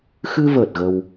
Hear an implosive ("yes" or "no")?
no